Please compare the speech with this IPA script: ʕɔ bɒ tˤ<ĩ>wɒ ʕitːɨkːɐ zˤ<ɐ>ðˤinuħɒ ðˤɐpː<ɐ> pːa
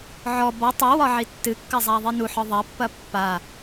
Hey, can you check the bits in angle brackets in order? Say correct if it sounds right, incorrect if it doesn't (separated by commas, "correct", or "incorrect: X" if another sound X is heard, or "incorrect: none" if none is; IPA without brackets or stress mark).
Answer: incorrect: i, incorrect: a, correct